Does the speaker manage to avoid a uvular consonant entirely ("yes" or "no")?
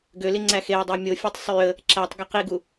no